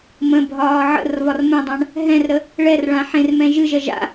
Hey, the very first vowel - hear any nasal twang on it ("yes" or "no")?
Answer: yes